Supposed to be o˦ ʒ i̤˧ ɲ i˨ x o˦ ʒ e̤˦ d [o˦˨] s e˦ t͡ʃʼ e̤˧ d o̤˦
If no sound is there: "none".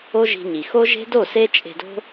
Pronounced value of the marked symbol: o˦˨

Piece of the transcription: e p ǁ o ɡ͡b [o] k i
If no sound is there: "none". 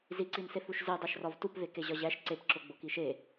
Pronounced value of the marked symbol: o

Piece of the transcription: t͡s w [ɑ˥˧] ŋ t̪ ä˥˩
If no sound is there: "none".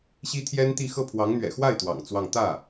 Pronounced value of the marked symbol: ɑ˥˧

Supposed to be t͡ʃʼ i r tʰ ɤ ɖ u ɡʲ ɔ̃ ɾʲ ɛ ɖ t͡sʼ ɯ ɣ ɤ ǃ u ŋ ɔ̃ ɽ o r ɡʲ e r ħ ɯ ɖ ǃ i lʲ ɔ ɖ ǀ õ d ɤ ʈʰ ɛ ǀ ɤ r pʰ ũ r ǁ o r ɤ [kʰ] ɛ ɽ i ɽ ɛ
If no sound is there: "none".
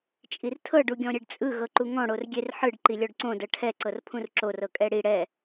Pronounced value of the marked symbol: kʼ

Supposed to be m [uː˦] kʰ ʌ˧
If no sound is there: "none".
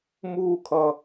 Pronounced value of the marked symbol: uː˦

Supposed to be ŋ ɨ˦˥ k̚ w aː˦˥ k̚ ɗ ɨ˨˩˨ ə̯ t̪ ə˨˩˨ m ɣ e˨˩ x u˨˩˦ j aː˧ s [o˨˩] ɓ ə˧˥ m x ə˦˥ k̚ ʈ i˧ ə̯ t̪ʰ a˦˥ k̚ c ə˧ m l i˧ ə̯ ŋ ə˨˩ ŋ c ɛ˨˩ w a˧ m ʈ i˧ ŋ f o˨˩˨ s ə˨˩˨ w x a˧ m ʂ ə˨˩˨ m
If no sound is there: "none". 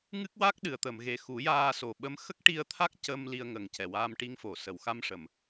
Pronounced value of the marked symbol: o˨˩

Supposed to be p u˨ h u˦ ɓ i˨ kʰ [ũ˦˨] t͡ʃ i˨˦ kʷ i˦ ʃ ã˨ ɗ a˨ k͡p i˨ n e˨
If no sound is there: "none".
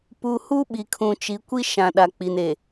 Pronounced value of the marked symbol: ũ˨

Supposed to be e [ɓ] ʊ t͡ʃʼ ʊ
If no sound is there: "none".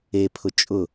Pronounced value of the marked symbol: pʰ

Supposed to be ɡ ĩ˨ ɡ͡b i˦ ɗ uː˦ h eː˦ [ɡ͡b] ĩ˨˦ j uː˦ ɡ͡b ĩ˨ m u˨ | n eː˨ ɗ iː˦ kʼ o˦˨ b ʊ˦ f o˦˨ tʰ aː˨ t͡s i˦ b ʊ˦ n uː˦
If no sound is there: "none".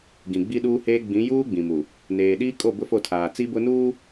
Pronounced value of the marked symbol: ɡ͡b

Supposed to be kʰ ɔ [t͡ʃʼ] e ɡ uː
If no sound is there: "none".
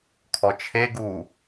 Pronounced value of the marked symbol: t͡ʃʰ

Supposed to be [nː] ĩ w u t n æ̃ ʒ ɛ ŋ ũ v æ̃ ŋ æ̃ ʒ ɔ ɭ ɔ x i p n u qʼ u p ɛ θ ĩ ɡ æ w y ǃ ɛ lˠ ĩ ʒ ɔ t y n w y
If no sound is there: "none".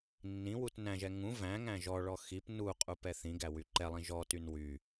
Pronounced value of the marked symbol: nː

